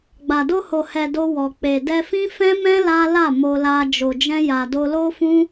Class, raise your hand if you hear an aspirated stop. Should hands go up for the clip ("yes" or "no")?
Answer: no